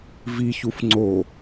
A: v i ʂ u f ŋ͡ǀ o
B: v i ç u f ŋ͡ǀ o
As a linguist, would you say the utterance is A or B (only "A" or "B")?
B